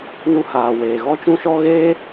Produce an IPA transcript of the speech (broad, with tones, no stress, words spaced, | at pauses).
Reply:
nu˧haː˨weː˨ɣɔ˦ t͡ʃũ˦ʃɔ˦ ɣeː˦